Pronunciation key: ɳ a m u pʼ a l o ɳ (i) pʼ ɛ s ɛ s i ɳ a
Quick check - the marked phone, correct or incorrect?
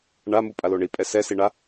correct